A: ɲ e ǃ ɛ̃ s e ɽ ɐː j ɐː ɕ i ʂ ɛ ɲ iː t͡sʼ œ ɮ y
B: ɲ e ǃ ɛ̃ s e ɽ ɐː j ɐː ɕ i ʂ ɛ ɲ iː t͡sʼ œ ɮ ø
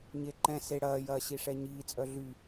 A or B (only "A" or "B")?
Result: A